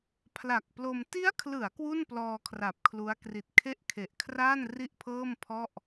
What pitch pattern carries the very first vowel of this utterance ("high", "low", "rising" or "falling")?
low